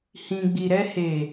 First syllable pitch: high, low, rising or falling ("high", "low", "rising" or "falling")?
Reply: low